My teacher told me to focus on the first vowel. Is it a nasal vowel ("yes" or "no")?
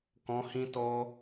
yes